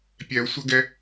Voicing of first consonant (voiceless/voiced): voiceless